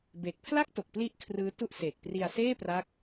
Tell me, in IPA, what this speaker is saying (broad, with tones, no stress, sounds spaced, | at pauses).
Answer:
b eː˨˩ k̚ pʰ l a˥˩ k̚ t o˨˩ k̚ p l i˥˩ ʔ kʰ r ɯː˦˥ t u˥˩ ʔ s eː˨˩ k̚ p r i˧ a̯ s eː˥˩ p r a˦˥ k̚